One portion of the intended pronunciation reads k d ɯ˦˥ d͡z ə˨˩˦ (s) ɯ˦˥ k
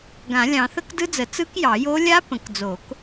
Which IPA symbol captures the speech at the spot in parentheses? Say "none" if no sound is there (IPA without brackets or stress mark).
t͡s